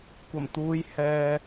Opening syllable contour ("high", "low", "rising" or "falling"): low